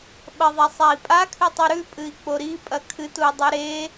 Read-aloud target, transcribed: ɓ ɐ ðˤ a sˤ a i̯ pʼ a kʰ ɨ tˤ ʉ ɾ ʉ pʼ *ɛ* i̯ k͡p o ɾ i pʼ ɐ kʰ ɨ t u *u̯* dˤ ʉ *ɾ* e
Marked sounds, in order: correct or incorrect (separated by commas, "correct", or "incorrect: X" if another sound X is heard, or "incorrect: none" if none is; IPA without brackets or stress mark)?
incorrect: ɨ, incorrect: i̯, correct